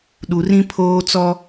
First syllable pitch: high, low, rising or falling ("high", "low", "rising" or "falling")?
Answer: low